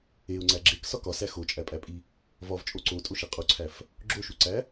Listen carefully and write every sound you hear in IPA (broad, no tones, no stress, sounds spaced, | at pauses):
e ʊ̯ ŋ͡ǀ æ ɡ͡ǁ e k s ɒ k ɒ s æ x o t͡ʃʼ æ pʼ æ pʼ i | v ɒ v t͡ʃʼ o ǀ o tʼ o ʃ i qʼ u ǀʰ æ f | ɡ͡ǁ o ʃ u ǀ æ